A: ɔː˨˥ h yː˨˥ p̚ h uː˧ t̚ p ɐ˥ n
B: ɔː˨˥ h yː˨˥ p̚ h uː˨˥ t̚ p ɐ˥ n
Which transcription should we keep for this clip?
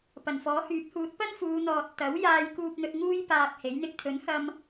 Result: B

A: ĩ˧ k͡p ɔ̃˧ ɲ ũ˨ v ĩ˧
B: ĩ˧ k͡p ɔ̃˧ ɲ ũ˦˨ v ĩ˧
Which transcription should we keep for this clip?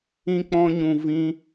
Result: A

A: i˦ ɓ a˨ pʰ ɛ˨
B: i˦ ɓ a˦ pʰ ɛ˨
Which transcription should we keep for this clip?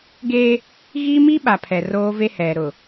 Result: A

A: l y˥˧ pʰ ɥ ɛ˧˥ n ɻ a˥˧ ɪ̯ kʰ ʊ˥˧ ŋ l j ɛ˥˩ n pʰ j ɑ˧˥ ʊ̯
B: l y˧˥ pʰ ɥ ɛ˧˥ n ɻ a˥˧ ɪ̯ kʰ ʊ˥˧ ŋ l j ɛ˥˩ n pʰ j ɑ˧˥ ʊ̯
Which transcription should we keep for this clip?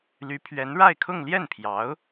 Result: B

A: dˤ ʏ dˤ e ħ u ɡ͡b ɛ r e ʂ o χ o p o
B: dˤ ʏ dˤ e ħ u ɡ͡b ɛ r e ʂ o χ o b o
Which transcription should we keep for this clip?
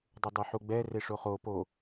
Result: A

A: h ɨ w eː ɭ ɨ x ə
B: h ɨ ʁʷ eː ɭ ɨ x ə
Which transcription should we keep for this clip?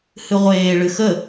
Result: B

